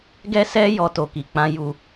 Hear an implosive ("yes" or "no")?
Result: no